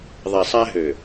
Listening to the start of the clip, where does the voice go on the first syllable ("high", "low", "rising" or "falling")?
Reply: low